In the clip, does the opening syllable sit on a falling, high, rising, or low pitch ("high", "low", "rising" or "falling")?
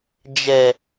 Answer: low